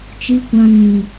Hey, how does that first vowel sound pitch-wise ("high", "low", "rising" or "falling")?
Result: low